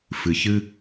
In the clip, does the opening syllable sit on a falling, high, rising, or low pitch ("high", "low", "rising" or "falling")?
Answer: low